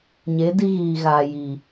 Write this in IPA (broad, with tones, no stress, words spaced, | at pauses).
ɲe˨˦ di˦ɣiː˨ɣaː˨ ji˨